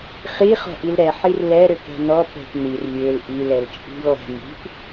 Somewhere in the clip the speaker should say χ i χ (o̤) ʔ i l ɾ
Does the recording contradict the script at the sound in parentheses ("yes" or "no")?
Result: yes